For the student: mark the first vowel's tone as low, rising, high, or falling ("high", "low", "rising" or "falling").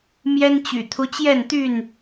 high